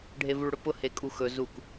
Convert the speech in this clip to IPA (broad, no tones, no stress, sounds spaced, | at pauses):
ɖʱ e v u ɭ ɽ ʊ p ʊ h e kʼ u x ɵ z u k